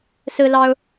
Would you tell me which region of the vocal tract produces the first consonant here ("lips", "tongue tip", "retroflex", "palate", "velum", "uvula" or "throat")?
tongue tip